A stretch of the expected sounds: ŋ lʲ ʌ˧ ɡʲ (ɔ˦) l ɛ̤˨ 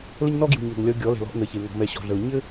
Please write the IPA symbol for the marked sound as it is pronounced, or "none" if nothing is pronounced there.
ɔ˨˦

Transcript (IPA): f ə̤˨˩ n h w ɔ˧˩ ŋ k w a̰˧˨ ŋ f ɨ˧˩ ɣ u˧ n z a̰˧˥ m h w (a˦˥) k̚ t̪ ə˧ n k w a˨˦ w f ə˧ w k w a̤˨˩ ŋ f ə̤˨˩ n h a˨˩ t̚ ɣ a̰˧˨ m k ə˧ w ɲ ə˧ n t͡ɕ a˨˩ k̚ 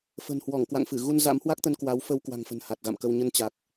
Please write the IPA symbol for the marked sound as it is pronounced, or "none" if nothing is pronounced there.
a˦˥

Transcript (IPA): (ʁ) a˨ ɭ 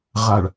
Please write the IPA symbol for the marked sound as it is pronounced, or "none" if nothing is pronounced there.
ʁ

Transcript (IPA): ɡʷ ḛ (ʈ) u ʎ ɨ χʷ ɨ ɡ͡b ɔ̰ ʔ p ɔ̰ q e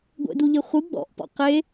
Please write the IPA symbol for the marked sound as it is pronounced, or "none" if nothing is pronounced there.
d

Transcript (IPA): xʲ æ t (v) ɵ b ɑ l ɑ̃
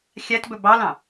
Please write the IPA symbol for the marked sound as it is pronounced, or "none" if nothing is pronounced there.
b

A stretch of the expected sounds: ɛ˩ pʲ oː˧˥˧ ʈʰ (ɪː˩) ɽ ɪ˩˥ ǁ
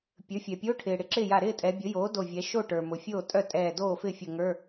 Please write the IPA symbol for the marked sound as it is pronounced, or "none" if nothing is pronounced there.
ɪː˩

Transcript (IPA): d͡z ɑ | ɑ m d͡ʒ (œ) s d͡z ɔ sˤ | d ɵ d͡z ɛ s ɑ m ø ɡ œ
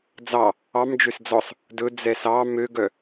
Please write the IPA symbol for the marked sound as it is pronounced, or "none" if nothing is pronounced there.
ø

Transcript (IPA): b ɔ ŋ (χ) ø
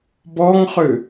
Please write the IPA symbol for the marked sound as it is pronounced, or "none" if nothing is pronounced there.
χ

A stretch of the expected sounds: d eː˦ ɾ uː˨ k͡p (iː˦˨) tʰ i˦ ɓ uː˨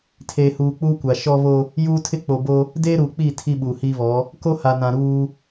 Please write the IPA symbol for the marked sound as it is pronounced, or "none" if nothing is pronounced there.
iː˦˨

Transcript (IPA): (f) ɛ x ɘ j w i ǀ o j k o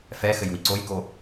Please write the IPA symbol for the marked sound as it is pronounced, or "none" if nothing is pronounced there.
f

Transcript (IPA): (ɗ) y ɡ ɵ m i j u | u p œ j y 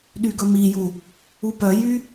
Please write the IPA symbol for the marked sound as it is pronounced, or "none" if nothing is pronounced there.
ɗ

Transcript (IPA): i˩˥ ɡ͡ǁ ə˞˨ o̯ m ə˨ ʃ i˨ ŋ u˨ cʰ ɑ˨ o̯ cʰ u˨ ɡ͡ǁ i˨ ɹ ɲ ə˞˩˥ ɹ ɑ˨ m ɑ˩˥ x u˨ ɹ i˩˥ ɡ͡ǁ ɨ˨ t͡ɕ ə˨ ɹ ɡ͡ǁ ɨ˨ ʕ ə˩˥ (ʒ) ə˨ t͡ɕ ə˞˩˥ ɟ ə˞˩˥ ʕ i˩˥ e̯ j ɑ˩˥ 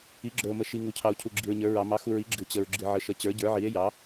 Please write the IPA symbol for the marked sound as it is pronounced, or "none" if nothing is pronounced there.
ʃ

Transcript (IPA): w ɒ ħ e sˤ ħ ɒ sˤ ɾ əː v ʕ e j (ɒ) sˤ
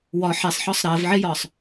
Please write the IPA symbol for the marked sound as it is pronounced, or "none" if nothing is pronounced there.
ɒː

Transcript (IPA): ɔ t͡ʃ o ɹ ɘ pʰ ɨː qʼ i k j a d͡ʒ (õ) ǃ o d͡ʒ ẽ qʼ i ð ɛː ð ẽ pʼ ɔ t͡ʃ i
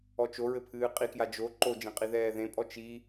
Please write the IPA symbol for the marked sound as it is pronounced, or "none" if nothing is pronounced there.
o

